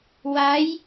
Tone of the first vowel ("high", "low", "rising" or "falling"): rising